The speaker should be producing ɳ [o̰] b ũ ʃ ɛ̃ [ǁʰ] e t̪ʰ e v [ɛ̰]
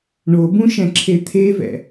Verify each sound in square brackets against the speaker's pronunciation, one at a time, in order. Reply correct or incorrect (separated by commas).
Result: incorrect, correct, correct